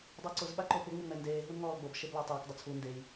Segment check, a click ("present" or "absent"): present